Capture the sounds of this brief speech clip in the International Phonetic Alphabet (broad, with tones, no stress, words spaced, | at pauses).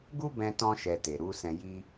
ɡu˦bɛ̃˧tɔ̃˧ ʃɛ˧te˨ɾu˨˦ sɛ̃˧ji˦